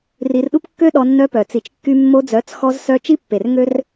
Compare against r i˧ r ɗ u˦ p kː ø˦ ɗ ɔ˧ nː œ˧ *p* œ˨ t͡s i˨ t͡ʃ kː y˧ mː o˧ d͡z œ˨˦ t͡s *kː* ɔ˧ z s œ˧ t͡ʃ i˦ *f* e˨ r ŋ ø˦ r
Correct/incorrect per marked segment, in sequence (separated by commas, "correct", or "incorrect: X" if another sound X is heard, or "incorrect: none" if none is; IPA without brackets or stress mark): correct, incorrect: x, incorrect: pː